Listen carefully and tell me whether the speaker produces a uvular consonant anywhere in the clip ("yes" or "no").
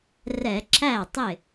no